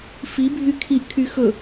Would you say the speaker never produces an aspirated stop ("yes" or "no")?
no